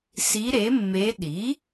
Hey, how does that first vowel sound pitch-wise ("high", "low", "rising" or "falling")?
rising